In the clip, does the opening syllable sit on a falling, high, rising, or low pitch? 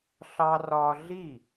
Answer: high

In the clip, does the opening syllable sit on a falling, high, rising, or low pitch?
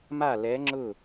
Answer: falling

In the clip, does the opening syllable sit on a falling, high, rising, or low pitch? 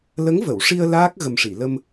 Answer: rising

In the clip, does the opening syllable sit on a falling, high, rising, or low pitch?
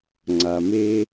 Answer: low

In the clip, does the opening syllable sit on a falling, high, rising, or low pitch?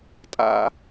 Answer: high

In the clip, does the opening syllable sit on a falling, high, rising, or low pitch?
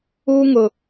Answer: high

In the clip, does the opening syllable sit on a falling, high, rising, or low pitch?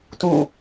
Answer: falling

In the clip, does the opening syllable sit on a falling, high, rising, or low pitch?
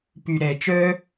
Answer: low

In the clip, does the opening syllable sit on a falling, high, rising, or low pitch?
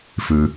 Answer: low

